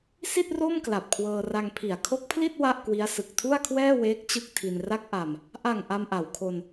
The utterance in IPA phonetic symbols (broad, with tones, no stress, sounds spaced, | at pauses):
s i˥˩ t̚ r o˥˩ m k l a˨˩ p̚ kʰ w ɤː˧ r a˧ ŋ pʰ i˩˦ a̯ kʰ o˦˥ k̚ pʰ l i˥˩ t̚ w a˥˩ ʔ k w i˦˥ a̯ s ɯ˨˩ k̚ tʰ u˥˩ a̯ kʰ w ɛː˥˩ w eː˦˥ k̚ t͡ɕ ɯ˥˩ k̚ tʰ i˧ n r a˦˥ k̚ ʔ a˧ m | ʔ a˨˩ ŋ ʔ a˧ m ʔ a˩˦ w kʰ o˧ n